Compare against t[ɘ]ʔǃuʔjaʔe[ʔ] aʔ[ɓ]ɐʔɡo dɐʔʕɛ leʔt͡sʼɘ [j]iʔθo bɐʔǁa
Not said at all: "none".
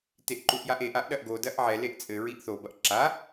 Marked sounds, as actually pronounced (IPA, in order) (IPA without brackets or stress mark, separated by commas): e, ʔ, ɗ, ɹ